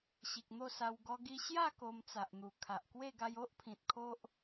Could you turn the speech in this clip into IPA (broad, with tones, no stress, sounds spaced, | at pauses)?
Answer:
ɕ i˨ k̚ n̪ o˥˧ s a˧ w ɡ ɔ˧ ɡ i˧ ɕ j a˥˧ k o˧ m t͡s a˨ ʔ n̪ u˨˩ kʰ a˨ ʔ k w e˥˧ ɡ a˧ j o˦ ʔ pʰ ĩ˨ t̚ kʰ o˦ ʔ